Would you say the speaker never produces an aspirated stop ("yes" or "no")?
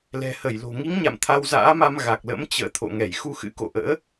no